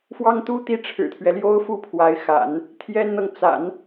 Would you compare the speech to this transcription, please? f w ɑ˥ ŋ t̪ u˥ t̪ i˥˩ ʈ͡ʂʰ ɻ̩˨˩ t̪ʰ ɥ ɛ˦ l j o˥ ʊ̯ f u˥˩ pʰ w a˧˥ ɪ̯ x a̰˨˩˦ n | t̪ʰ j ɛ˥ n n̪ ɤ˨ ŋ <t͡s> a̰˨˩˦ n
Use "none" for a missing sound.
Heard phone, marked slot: t͡s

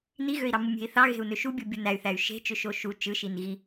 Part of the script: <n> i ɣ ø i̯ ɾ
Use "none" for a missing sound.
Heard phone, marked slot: n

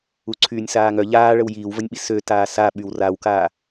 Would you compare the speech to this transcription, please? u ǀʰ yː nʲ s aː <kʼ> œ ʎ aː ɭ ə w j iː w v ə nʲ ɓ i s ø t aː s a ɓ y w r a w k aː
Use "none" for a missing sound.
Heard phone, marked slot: ŋ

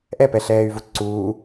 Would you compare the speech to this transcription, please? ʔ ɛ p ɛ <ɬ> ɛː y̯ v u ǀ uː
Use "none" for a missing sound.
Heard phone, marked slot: ɬ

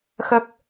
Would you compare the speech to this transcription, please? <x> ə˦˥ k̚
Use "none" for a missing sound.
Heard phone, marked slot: x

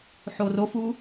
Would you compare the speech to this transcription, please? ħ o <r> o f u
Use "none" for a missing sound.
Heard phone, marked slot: r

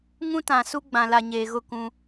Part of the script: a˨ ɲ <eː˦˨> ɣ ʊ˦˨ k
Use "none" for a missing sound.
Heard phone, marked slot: eː˨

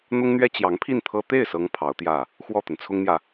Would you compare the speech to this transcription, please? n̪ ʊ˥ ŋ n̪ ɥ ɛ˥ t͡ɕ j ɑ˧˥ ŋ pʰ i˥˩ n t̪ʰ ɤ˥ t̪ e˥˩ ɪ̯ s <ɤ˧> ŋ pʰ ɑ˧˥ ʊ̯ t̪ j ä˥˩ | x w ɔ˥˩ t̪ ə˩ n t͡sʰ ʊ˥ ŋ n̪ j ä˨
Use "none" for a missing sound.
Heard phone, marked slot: ɤ˧˥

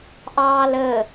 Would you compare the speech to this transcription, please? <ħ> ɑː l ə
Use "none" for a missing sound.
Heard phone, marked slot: ʔ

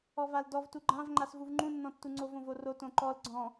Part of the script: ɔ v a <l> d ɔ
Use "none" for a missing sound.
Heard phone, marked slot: l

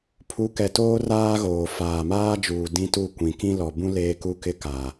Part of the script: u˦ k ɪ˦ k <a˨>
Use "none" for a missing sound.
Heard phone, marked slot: a˨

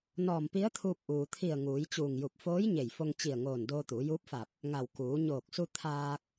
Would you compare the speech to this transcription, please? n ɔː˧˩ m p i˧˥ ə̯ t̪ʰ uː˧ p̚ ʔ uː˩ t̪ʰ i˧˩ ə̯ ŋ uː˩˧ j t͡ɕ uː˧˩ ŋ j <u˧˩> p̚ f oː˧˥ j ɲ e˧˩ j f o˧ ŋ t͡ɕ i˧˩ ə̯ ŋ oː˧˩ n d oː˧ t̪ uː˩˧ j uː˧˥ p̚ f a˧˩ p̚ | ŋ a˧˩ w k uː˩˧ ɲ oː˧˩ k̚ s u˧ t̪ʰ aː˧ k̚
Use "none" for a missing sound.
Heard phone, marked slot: u˧˩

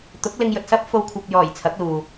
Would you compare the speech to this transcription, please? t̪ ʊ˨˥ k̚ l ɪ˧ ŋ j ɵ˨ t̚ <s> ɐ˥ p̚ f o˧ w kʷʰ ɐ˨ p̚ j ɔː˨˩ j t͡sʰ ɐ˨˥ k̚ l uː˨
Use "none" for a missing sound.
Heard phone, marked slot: s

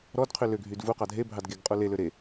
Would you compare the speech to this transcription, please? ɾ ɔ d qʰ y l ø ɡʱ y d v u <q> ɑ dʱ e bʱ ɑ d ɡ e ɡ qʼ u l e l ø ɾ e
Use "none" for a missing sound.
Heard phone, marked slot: q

